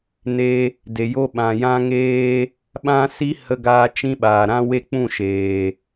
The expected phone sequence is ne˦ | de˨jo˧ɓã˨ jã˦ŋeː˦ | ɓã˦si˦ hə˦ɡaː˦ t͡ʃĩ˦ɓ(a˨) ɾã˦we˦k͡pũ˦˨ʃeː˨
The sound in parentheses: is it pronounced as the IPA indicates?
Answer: no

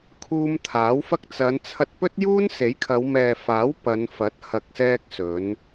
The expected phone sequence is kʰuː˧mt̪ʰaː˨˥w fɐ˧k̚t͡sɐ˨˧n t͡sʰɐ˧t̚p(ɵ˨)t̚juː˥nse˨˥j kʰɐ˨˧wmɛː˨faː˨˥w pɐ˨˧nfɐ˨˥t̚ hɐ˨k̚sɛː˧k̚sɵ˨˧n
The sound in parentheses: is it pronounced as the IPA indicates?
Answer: no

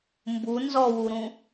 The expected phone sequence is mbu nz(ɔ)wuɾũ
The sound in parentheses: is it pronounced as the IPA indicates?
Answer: yes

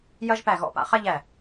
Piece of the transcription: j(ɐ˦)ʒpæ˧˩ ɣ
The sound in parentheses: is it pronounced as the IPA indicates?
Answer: yes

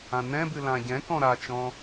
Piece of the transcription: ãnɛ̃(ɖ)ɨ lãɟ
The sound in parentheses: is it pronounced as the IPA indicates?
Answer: no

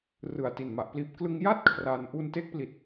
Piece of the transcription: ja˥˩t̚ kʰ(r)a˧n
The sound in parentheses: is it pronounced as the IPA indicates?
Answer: yes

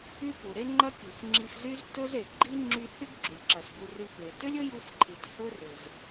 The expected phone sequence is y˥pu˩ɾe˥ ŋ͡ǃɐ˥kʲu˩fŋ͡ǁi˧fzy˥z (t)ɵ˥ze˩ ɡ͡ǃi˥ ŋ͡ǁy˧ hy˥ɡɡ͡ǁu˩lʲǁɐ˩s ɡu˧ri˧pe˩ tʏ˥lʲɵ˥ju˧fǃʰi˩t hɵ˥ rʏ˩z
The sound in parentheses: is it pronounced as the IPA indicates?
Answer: yes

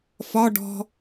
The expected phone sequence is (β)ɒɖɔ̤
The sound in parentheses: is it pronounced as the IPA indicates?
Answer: no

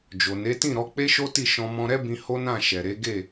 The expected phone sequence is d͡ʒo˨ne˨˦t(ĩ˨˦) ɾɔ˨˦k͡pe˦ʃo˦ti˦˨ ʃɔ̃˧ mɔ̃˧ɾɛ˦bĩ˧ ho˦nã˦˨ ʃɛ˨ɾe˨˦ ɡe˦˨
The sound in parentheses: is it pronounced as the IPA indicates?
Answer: no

